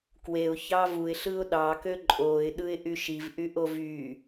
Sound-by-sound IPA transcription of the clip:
k w e ʊ̯ ç ɑ v u ɪ̯ ɬ ɯ ʊ̯ ɗ ɑ k ø ǃʼ o ɪ̯ ɗ ɯ ɪ̯ ʔ y ʃ i v ʔ y ʔ o v y

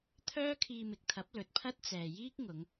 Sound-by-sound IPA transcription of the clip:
t̪ʰ œː˥ kʰ iː˧ m ɪ˨ k̚ t̪ʰ ɐ˨˥ p̚ l ɵ˨ t̚ pʰ ɐ˥ t̚ t͡s ɛː˨ j iː˥ k̚ ŋ ʊ˨˧ ŋ

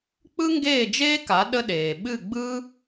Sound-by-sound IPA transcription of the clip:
k͡p ɯ˥ ŋ ɡ eː˥˩ d͡ʒ eː˥ k a˩˥ ɗ ə˥ ɗ eː˩ ɓ ɨ˥˩ ɡ͡b ɯ˥

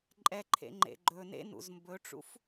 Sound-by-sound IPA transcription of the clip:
ǃʼ ɛ ǃʰ ḛ ŋ͡ǃ ḛ ɡ͡ǃ ɵ n ḛ n ṵ z m b ɵ ʈ͡ʂ ṵ f

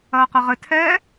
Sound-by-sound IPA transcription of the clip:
ɐː q ɐ ʁ ɘ tʰ ɛː

